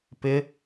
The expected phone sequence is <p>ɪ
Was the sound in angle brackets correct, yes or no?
yes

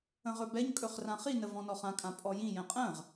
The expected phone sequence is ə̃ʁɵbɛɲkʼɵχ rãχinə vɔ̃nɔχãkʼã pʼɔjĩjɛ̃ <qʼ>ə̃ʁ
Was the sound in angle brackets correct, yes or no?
yes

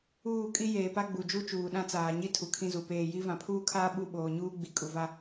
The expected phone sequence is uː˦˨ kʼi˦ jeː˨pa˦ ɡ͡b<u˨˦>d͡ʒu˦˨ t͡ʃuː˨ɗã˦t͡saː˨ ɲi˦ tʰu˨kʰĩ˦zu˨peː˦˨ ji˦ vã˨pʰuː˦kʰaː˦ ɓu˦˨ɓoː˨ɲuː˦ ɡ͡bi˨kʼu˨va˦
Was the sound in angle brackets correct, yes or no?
no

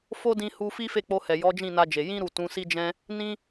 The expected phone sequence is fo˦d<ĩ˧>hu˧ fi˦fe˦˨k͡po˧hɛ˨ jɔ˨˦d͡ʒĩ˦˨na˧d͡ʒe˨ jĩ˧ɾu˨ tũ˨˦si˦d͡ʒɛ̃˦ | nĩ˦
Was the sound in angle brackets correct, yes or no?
yes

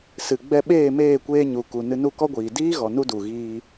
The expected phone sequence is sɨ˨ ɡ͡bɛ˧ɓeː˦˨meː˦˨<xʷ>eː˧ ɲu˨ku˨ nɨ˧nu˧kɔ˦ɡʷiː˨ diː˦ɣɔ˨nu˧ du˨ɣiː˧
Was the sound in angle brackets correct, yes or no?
no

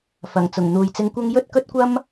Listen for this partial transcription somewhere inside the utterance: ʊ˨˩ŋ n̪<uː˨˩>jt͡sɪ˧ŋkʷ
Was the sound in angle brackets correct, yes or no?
no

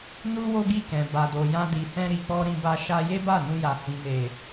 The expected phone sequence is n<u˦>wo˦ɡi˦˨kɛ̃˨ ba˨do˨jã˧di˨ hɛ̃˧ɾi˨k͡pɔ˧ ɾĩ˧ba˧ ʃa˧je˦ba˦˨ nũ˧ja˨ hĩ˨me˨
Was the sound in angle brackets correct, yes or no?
yes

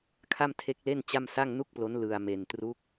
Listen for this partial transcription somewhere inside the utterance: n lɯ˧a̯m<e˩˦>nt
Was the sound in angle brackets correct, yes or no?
no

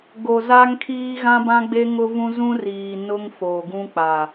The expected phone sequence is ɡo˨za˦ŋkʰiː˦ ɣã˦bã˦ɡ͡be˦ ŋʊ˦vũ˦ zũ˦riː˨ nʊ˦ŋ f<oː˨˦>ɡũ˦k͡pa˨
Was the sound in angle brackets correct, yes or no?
no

